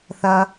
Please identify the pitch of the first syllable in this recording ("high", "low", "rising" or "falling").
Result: low